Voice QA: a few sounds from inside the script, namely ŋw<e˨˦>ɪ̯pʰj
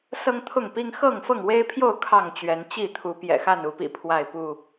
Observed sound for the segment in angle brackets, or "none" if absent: e˦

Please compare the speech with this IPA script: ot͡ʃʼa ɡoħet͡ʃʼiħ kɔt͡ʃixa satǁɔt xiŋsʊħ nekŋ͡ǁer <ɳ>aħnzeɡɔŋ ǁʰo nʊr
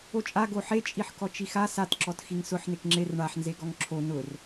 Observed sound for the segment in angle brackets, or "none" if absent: ɳ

